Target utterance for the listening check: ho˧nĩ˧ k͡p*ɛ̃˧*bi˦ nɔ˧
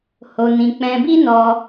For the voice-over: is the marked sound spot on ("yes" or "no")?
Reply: yes